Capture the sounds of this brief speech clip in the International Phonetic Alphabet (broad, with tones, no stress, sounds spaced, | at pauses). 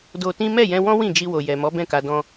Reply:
d o˧ t ĩ˦ m ɛ˦˨ j ɛ̃˧ w ɔ̃˦ w ĩ˦˨ d͡ʒ i˧ w o˨ j ɛ˨ m ɔ˨˦ b ɛ̃˦˨ k a˧ d ɔ̃˦